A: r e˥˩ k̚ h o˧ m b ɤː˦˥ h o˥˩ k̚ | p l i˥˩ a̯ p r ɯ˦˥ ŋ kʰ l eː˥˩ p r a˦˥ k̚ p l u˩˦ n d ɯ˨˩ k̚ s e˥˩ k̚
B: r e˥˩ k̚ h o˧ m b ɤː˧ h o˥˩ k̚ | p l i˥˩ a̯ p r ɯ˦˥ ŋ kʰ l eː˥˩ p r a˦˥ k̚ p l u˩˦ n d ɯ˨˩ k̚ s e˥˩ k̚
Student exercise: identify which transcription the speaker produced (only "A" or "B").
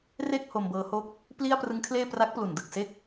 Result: A